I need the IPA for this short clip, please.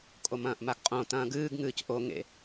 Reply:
kʼ o m ɐ̃ː ʔ m a ɡ qʼ õ t ɐ̃ː ɡ ɨː ɡ ŋ ɨː c ʔ o ŋ ḛ

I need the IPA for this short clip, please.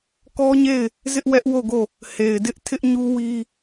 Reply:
k ɔ˦ ɲ e˦˨ ɪ̯ | z ɪ˦ ʔ w ɛ˦ ʔ w o˦˨ ɡ o˦˨ | h e˨ ɪ̯ d ɪ˦ ʔ tʰ ɪ˦ ʔ ɲ u˦ w i˦

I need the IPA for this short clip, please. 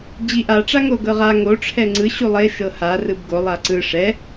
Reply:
d͡ʑ i ʔ a ʈ͡ʂ a ŋ o ɡ ɤ ʁ a ŋ o ʈ͡ʂʰ ɛ ŋ͡ǀ ɯ ɕ u lˠ e ʃ ɤ h a r ɯ b ɡ o lˠ a ǀ ɯ ʂ ɛ

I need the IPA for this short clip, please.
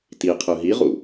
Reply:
t i qʰ ɯ ɦ i ʁ ṵ

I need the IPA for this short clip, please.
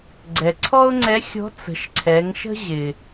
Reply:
ɡ͡ǀ ɛ˩ ǀʰ ɔ˥ ʊ̯ ŋ͡ǀ ɛ˧˥ xʲ ɔ̤˧˥ t͡s ə̤˩˧ ʃ ǀʰ ɛ˩˧ ŋ ʃ ə̤˥ ʑ ɪ˩

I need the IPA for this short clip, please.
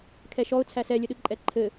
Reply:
kʰ ɛ ʃ ɔ ʊ̯ t͡sʰ æ s ɛ lʲ ɘ ɗ ɯ ǃʼ ɛ ǃʰ ɘ

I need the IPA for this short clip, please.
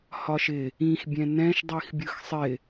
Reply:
h ɒ ʃ ɪ | ĩ x bʲ ɛ̃ n ɛ̃ ʃ dˤ i x bʲ ɯ x sˤ ɪ

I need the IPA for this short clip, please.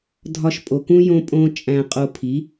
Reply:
dʱ ɒ˧ ʃ pʼ o˨ k ũ˦ j õ˦ pʼ õ˦ t͡ʃʼ æ̃˧ qʼ o˧ pʰ i˨˦

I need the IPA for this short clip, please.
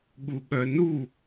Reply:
ɠ u ɠ œ n u

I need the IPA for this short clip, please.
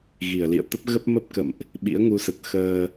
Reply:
ɣ i˧˩ ə̯ l ḭ˧˨ ə̯ t̪ ə˦˥ p̚ ɣ ə˦˥ p̚ m ə˦˥ p̚ k ə̰˧˨ m ʔ | ɓ ḭ˧˥ ə̯ ŋ u˨˦ s ə˨˩ t̚ x əː˧

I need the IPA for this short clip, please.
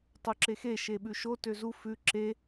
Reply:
tˤ u ǁ e x e ʃ e ɓ ʉ ʃ o t ø z u f ʉ ǁ e

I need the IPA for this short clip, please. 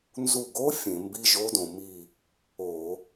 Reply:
n z u˧˩ ɡ o˧˥ fʲ ẽ˧˩˧ m b i˧˥˧ ʒ o˧˥ d õ˩ m i˧˩ | o˧˩˧

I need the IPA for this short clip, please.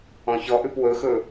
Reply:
ɔ̃ ç ɔ ʔ ʉ p w ɵ x ɵ

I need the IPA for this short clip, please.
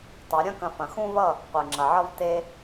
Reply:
tˤ ɐ˨˦ ɾʲ ɐ̃˦ k ɐ̃˧ f ɐ̃˨ x ũ˦ v ʌ˦˨ | qʷ e˨ ŋ͡ǁ ɐ˨ ʕ ʌ˦ v t e˦

